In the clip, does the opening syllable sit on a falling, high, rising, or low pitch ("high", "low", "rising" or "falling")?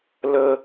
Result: high